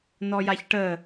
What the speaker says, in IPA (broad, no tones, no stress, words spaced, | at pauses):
nɔjaçʈə